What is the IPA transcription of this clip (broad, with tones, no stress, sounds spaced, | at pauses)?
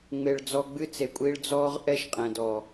ŋ͡m e˨ ɭ d͡z ɔ˧ ɡ͡b ɨ˦ t͡s e˨ kʷʼ i˧ ɭ d͡z ɔː˦ ʁ ʔ ɛ˦ ʃ qʼ ɛ̃˨ d ɔː˨